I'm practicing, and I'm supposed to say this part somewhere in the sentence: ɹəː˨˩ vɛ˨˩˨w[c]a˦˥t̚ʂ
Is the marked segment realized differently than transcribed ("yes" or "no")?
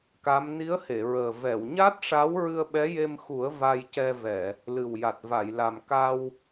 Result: yes